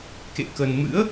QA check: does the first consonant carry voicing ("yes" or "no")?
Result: no